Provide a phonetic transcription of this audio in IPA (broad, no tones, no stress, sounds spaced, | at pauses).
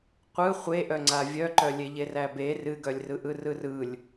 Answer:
qʷ ɯ χʷ e ʔ œ ŋ͡ǀ a vʲ œ ǃ œ lʲ e ʎ e r æ b e r ɨ ɡ œ lʲ r ɯ ʔ ɯ r ɯ r ɯ lʲ